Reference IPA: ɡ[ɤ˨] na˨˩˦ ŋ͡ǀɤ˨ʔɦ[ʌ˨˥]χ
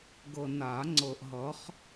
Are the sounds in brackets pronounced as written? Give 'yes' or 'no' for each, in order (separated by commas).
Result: yes, yes